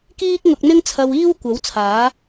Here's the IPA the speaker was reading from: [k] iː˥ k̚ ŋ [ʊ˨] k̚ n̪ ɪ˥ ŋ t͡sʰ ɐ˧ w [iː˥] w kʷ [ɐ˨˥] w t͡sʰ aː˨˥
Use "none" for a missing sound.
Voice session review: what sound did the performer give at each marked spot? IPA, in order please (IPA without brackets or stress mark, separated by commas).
k, ʊ˧, iː˥, ɐ˨˥